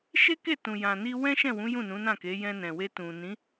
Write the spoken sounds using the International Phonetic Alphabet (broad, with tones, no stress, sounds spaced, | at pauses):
ʃ e˦ k e˦˨ t ũ˨ j ã˨ n i˧ w ɛ̃˦ ʃ ɛ̃˦˨ w ũ˨˦ j ũ˦˨ n ũ˨˦ n ã˦˨ k e˨˦ j ɛ̃˧ n ɛ̃˨ w e˧ t ũ˨ n ĩ˨˦